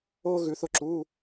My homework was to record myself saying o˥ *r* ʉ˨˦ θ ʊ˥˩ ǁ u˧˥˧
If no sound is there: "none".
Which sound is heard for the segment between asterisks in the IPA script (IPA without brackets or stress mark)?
ɣ